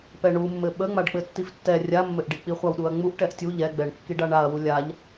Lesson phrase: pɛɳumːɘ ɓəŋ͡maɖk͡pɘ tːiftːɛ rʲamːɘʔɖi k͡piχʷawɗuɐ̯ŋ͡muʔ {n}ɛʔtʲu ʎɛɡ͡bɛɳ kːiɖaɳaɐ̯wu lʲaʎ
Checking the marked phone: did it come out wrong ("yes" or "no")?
yes